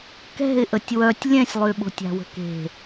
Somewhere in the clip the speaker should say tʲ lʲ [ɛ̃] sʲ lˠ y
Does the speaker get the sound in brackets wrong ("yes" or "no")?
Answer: no